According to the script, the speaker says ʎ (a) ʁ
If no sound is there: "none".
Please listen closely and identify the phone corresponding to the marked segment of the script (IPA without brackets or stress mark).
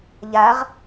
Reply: a